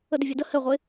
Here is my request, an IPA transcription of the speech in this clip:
ə d ɪ vʲ ɛ d ə h ɘ ʁʷ ɪ

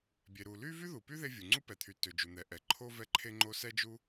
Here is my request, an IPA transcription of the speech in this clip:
bʲ e˩ ɾ u˩ l y˥ v y˥ ð u˩ p y˥ ð e˥ vʲ u˩ ŋ͡ǀ u˥ p ɛ˩ t̪ʰ y˩ t ø˩ d͡ʒ u˩ n̪ ɛ˩ ʔ ɛ˩ ǃʰ o˥ v ɛ˥ ǃʰ e˥ ŋ͡ǃ o˥ s ɛ˥ d͡ʒ u˥

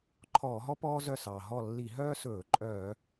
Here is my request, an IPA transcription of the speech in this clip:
ǃʰ ɔː˧˩˧ ɦ ɔ˥ p ɔː˥ z œ˦˨ s ɑː˩ ɦ ɔ˦˨ lː i˧˩˧ ɦ œː˥ s ɵː˧˩˧ ǃʼ œː˧˩˧

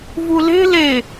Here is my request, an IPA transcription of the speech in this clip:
v u l e̤ l e

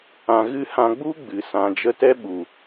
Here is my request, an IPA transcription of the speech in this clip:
ã˧ ɣ ɨ˦ h ã˧ ɡ͡b u˦ ɡ͡b ɨ˨ s ã˨ d͡ʒ ə˧ t ɛ˦ ɓ u˨

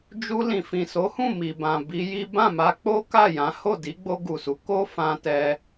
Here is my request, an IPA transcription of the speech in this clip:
d͡ʒ u˧ l ĩ˨ f ĩ˨ s o˨˦ h ũ˦˨ m i˨ b ã˨ b i˧ j i˦ b ã˦˨ m a˧ k͡p o˦ k a˦˨ j ã˨˦ h o˦˨ d i˨˦ ɡ͡b o˧ ɡ u˨ s u˨˦ k o˦ f ã˧ t ɛ˧

